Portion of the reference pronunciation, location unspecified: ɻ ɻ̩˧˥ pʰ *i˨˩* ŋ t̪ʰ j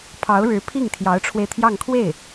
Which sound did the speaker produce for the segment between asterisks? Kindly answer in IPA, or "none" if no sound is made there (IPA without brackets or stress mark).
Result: i˥˩